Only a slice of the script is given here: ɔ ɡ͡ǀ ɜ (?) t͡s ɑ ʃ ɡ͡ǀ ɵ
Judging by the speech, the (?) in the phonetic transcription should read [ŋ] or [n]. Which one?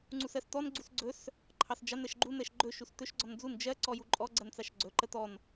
n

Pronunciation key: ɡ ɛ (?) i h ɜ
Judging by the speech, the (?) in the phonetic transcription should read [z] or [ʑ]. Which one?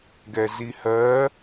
z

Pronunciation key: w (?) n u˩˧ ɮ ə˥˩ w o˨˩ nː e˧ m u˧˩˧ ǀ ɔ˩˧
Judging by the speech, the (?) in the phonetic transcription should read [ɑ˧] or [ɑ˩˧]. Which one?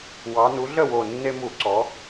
ɑ˩˧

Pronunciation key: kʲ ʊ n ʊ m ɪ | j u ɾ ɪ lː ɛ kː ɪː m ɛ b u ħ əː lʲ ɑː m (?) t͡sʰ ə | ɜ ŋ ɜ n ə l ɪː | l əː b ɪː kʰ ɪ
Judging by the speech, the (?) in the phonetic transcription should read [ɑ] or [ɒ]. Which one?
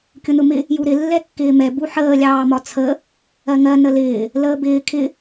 ɒ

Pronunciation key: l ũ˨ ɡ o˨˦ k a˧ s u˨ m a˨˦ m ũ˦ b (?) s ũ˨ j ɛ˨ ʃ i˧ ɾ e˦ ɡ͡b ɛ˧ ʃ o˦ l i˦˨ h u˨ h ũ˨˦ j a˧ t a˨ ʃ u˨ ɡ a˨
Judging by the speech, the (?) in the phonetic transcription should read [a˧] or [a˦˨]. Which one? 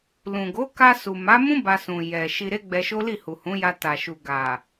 a˧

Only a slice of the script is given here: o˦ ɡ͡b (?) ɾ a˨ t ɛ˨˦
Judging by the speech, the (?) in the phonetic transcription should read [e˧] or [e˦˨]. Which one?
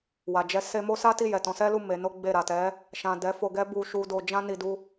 e˦˨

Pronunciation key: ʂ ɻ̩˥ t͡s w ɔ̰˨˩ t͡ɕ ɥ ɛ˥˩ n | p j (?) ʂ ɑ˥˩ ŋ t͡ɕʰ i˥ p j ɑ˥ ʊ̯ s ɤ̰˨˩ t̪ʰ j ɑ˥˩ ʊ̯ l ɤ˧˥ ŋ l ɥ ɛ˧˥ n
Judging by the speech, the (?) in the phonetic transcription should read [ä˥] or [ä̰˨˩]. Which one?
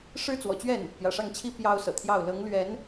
ä̰˨˩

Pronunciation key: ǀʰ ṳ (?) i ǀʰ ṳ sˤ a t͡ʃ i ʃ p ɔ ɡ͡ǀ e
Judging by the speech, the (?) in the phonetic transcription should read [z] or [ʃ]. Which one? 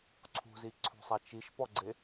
z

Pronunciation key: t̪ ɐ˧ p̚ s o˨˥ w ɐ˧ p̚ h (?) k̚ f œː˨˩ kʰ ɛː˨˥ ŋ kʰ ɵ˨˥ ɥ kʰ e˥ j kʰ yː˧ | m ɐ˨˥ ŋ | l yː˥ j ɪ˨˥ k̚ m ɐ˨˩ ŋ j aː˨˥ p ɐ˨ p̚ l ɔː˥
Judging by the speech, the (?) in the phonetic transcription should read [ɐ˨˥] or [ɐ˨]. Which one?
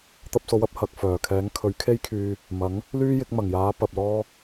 ɐ˨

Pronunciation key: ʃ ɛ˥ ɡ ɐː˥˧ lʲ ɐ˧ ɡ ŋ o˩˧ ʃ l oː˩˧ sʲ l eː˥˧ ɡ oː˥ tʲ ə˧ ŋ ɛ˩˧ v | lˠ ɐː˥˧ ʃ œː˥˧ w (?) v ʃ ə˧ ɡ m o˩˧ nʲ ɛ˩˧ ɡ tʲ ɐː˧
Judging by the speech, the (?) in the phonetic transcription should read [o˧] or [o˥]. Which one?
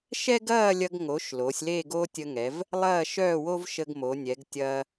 o˥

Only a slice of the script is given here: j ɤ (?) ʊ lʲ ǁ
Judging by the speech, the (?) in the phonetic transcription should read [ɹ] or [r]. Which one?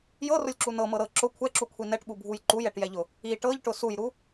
r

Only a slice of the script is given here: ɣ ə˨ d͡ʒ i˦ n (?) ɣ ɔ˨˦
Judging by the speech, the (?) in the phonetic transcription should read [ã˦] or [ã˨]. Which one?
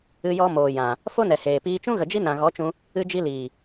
ã˨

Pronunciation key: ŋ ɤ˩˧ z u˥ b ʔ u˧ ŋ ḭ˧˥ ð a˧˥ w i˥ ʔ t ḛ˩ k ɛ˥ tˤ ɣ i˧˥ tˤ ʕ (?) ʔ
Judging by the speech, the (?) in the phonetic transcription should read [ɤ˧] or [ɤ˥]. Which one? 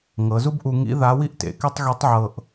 ɤ˧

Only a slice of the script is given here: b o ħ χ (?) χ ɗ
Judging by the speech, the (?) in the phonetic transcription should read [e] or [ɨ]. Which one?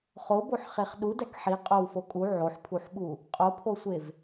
e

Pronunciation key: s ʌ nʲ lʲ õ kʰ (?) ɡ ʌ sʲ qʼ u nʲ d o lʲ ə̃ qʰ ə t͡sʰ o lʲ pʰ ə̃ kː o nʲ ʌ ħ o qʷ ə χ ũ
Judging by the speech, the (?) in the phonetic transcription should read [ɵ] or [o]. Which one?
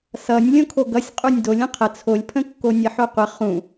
o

